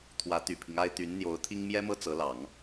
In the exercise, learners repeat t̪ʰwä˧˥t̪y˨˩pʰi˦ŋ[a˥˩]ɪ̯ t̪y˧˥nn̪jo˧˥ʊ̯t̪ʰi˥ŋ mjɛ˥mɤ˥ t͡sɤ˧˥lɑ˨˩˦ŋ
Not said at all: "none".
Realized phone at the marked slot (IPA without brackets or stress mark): a˥